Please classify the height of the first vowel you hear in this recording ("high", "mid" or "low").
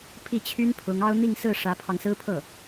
high